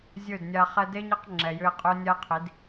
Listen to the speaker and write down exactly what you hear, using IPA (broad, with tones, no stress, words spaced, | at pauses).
zʲɵ˦˨dnʲa˧ χɛ˧de˦ɲi˧q ŋ͡ǁɛ˨jʏ˧e̯qʼɵ˦ nʲa˦qʰi˨˦d